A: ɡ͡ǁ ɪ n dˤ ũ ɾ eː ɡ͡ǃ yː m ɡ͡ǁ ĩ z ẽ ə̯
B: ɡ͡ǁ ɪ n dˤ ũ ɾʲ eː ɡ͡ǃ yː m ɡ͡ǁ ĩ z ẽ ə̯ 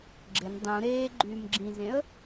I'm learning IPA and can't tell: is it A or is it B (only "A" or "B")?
A